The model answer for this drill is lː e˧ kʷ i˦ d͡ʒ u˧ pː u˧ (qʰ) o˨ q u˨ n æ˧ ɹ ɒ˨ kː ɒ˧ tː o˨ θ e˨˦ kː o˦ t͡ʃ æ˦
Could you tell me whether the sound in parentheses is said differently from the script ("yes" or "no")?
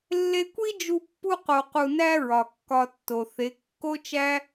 yes